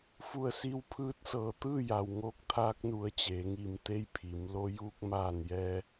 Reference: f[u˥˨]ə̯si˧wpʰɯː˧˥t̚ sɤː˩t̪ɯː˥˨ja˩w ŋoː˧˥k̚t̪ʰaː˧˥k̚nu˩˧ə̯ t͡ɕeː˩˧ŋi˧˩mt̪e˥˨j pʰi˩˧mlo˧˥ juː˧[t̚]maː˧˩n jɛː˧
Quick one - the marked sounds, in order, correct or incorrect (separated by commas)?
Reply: incorrect, incorrect